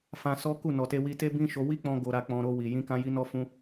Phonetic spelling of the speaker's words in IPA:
f ã˧ s ɔ˦ k u˦˨ n ɔ˨ t e˧ w i˧ t e˦ b ĩ˦ ʃ o˧ w i˦ k͡p ɔ̃˧ ɡ o˧ ɾ a˧ k͡p ɔ̃˧ ɾ o˧ w i˨ j ĩ˧ k ã˧ j i˧ n ɔ˧ f ũ˧

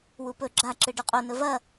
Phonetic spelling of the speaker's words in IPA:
w u p ɵ ɡ͡ǁ a ǁ ɨ ɖ ʉ qʼ o n ɵ v ɐ

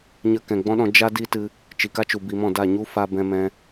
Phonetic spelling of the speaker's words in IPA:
ɲ ə˧ k ɛ̃˨ ɡ͡b ɔ̃˦ ɗ ɔ̃˧ d͡ʒ a˧ d i˦ t ɨ˧ | t͡ʃ i˨ k a˦ t͡ʃ u˨ b i˨ m ɔ̃˦˨ d a˦˨ ɲ u˦ f a˧ b ɛ̃˧ m ɛ̃˧

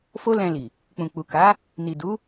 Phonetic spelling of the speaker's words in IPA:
f o˦ l ɛ̃˧ l i˨ | k͡p ũ˨ k͡p u˨ k a˨˦ | n i˨ d u˨˦

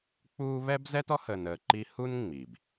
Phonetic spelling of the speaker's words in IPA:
k͡p uː˦ β ɛ˥ b z ɛ˥ t ɔ˥ h ə˨ n əː˨ ǃ i˦ h u˥ n ŋ͡m i˩ b

